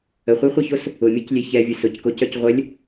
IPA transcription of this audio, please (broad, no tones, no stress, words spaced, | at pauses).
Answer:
əχʷeχʷœços | ʊmʲɤclʲe çɛvʲʊ sʊckocœc ʁʷəlʲ